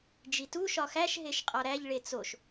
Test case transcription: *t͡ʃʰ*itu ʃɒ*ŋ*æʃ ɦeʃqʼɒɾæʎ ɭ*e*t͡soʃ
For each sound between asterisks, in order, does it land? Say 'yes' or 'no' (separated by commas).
no, no, yes